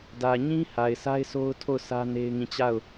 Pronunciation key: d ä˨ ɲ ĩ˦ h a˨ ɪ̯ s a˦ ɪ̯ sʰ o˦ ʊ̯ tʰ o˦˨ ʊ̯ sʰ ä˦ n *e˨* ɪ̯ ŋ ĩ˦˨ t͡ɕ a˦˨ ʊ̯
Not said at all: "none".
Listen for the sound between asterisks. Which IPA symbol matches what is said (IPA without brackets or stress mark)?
e˦